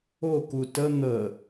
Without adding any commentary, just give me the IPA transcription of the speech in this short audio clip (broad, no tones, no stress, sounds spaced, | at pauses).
o k u t ə n̪ ə